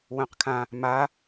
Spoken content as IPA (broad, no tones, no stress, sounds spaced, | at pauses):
w œ̃ q kʰ ã | m a